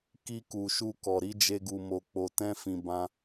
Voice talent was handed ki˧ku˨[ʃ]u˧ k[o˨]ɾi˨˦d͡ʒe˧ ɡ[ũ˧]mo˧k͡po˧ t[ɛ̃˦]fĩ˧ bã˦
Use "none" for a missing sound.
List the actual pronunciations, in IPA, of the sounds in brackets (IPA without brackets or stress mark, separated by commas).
ʃ, ɔ˨, u˧, ɛ̃˦